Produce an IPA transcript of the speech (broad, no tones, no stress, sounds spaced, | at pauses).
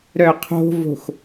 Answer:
ɾ œ qʰ o̤ v o̤ x